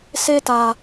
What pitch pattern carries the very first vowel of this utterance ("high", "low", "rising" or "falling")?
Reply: high